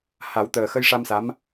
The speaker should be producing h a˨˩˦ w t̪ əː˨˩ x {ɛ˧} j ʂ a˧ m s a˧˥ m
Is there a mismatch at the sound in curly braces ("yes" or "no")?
yes